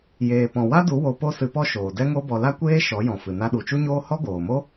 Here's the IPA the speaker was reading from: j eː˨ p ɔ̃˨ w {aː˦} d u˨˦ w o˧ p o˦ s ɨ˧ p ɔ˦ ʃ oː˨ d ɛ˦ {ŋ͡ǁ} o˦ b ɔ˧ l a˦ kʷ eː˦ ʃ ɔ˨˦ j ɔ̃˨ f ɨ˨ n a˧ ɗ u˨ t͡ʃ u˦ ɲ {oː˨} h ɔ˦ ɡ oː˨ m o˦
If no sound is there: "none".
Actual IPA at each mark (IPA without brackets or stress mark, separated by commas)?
a˦, ŋ, oː˦